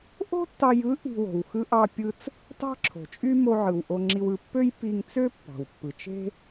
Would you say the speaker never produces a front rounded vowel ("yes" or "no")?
no